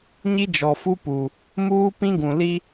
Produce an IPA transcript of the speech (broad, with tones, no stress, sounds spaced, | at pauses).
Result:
ɲ i˦ d͡ʒ ɔ˨ f u˦ p u˨ | m uː˦ p ĩ˦ ɡ ũ˨ l i˦